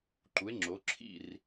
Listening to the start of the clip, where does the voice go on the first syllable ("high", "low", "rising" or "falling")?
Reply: rising